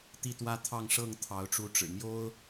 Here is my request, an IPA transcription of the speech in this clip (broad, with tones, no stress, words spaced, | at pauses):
t̪i˥˨t̪wä˦ t̪ʰɑ˥˨ŋ ʂɤ˥˨ŋt̪ʰɑ˨˦ʊ̯ʈ͡ʂu˨˦ʈ͡ʂɻ̩˨˩ mjo˦ʊ̯